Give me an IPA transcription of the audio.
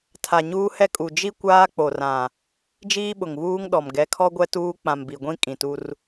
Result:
tʰa˨ɲuː˦hɛ˦kʼu˨ d͡ʒi˦ kʷaː˦k͡po˨rã˨ | d͡ʒiː˦ɓʊ˨ŋβuː˦ŋɗɔ˨m ɡɛ˨˦kʰɔ˦ ɡʷɛ˦tuː˦ k͡pã˨mbi˨ɡʷĩ˦ kʼĩ˨tu˦r

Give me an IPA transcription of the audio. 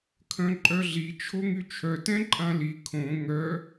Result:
kʰœ̃ǃʼœɮi t͡ʃʰoŋyt͡ʃʰœ tɛ̃ǃʼãli kʰõ ŋœ

